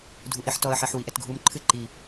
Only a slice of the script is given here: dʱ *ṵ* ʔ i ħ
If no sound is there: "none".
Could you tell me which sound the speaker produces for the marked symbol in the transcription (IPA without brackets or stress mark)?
u